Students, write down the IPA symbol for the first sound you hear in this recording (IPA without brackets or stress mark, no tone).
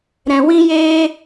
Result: ɾ